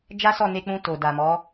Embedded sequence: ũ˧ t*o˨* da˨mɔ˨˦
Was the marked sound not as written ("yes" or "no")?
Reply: no